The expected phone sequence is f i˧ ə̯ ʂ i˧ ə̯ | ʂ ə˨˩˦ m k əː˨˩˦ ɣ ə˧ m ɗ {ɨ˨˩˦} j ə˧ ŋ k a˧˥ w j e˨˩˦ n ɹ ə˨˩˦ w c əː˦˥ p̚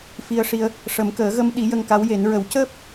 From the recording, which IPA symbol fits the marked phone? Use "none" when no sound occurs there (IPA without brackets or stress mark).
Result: i˨˩˦